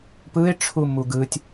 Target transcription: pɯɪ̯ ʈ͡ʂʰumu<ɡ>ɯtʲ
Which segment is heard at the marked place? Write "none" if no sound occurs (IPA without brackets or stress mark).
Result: ɡ